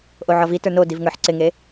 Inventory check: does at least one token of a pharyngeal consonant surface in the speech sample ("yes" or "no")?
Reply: yes